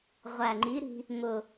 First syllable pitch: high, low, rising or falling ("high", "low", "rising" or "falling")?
low